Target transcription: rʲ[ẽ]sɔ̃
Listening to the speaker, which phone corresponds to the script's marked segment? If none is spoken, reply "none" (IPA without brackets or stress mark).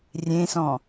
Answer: ẽ